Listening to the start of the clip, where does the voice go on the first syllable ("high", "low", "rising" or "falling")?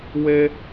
high